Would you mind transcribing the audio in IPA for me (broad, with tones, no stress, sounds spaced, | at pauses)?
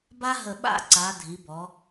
b a˥ ɦ ə˧˩ ɓ a̰˥˧ ǀ a˩˧ dʱ i˩˧ b ɔ˩˧